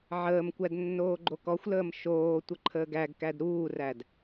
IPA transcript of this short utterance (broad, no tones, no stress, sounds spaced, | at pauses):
ʕ əː m kʷ æ d nː oː ɡ͡ǃ o k ɔ xʷ l əː m ʃ oː tʷ ə ǃʰ əː ɡ æ ɡ k æ d ɾ uː r æ d